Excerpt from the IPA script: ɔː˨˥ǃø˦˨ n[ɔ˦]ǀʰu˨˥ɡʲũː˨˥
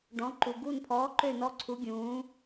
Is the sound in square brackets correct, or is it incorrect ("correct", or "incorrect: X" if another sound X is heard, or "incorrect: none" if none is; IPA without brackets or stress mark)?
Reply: correct